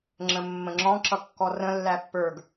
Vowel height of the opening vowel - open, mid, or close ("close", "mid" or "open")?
mid